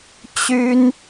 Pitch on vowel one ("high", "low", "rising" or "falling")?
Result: high